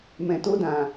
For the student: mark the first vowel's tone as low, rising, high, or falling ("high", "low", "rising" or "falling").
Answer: low